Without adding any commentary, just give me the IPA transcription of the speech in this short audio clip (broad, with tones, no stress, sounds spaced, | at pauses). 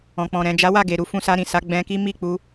ɔ̃˨ k͡p ɔ̃˨ ɾ ɛ̃˨ d͡ʒ a˨˦ w a˦˨ ɡ e˨ ɾ u˨˦ f ũ˧ s a˧ ɾ ĩ˨ s a˨˦ ɡ͡b ɛ̃˧ k i˦ m i˦˨ k͡p u˧